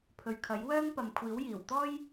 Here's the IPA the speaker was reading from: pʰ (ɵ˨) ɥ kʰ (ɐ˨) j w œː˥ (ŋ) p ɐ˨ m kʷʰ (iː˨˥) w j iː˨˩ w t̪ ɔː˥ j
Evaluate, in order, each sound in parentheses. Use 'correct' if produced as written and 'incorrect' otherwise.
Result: correct, incorrect: ɐ˨˥, correct, correct

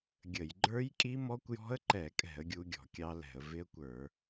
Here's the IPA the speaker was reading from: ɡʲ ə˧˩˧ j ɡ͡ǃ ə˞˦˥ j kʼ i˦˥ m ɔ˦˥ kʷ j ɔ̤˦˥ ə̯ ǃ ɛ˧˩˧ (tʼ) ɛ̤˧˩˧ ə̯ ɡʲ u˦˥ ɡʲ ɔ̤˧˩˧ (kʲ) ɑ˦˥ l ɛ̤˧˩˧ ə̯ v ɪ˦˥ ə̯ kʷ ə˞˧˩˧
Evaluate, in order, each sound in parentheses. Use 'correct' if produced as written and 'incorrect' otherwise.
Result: incorrect: kʼ, correct

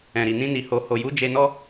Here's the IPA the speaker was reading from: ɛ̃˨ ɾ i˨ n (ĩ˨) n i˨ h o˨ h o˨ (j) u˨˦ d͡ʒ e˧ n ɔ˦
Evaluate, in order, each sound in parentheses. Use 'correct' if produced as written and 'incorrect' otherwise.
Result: incorrect: ĩ˧, correct

